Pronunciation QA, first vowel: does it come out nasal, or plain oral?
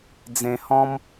nasal